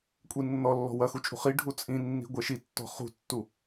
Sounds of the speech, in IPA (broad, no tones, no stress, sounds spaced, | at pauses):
kʷʼ i nː ɔ lː ɔ̤ w ɐ x u t͡ʃʼ ṳ χ i ɖʱ u t͡sʼ ĩ nː i̤ ɡʷ ɛ ʃ i tː ɔ̤ χ ṳ tː u